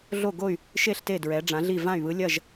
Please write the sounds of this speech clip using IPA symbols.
ɮ o˧˩ ɡ o˧˩ y̯ | ʃ e˧˩ ɬ t e˧˩ d ɹ ɛ˩˧ ɖ͡ʐ ã˩˧ ɮ i˧˩ v ã˧˩ y̯ β ɯ˩˧ lʲ ɐ˧˩ ʒ

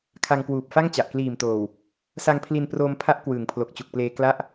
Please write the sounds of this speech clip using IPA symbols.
kʰ a˧ ŋ k w uː˨˩ p̚ f a˥˩ ŋ t͡ɕ a˨˩ ʔ k l iː˨˩ m t oː˨˩ w | s a˧ ŋ pʰ l i˧ n p r oː˧ m pʰ a˦˥ ʔ k w ɯː˩˦ ŋ pʰ l o˨˩ k̚ t͡ɕ u˨˩ k̚ p l eː˧ k l a˥˩ ʔ

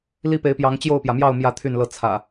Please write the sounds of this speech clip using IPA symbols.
l i˦ p e˨˦ ɪ̯ p j ɑ˨˦ ŋ t͡ɕ j o˥˨ ʊ̯ p j ä˩ m j ɑ˥˨ ʊ̯ m j ä˥˨ t̪ʰ y˥˨ n l ɤ˥˨ t͡sʰ ä̰˨˩

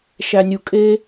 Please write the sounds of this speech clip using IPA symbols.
ʃ æ˨ nʲ u˨ kʼ e˦

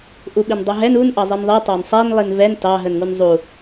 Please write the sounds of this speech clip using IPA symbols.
ʔ u ɓ i n dˤ u ɦ ɛ n u n ʔ ɑ zˤ i n ðˤ i tˤ ɑ n sˤ ɛ n lˠ i n v ɛ n t ɑ ɦ ə n ŋ u n zˤ u

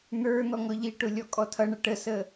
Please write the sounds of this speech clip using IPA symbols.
n̪ ə˞ n̪ ɔ ŋ ɔ ʎ i ʈ ʊ lʲ ɔ kʼ ɔ tʰ ʌ ɳ ʌ ʈ ə s ə

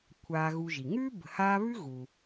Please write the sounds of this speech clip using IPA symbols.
kʷʰ aː˨ ɣ u˨ ʒ i˩ ŋ ʉː˥ b ə̤˨ h aː˦ β ʉ˥ ɣ uː˩

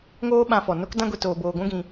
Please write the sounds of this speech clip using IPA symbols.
ŋ oː˦ ɓ ã˧ f ɔ˨ n o˦ k d ã˦ ɡʷ e˧ t oː˧ b oː˧ ɡʷ ũ˦ ɡ ĩ˧

